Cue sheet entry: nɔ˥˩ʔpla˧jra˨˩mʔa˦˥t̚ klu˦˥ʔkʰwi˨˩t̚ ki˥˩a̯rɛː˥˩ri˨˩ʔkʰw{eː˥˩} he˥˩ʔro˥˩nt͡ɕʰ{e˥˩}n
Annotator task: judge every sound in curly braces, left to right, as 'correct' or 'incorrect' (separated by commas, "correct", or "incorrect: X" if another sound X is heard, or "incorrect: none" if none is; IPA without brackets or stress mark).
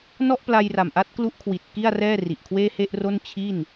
correct, incorrect: i˥˩